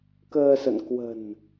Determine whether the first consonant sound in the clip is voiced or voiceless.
voiceless